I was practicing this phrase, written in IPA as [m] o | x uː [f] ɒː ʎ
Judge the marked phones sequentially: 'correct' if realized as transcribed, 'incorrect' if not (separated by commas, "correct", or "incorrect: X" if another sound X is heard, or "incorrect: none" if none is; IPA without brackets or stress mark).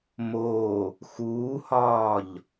correct, incorrect: h